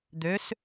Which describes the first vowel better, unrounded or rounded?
rounded